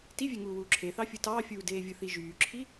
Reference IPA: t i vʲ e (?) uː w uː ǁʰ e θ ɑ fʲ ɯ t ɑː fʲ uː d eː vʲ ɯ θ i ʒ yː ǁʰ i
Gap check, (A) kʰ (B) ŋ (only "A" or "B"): B